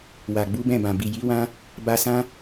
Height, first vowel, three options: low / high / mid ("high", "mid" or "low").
low